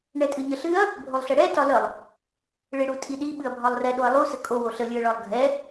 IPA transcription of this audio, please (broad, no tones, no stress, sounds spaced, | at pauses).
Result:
ɳ ɛ tʼ ɨ ɲ ə ɬ ɨ ɐ̯ | bʱ o lˠ ɬ ɛ ɽ ɛ t ɒ l ə lˠ | ɭ e ɽ u tʼ i ɗ i ɓ ɨ ɐ̯ bʱ ɒ lˠ r ɛ ɗ o ɐ̯ lˠ u s ə kʼ o w o ɬ ə lʲ ɨ ɐ̯ ɭ ɒ lˠ ɡʱ ɛ